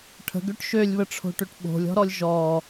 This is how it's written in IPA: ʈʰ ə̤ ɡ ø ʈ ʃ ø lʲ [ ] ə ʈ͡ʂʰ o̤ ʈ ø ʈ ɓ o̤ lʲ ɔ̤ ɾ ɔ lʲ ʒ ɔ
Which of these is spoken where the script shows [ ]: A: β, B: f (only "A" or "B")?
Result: A